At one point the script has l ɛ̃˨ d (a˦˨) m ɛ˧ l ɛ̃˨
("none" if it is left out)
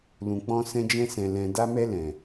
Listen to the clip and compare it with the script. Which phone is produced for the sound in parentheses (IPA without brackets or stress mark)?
a˧